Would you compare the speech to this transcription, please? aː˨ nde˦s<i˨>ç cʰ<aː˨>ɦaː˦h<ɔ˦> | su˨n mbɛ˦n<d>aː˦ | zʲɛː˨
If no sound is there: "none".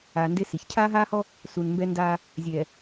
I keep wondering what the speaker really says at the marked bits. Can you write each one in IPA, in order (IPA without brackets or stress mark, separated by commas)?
i˨, aː˦, ɔ˦, d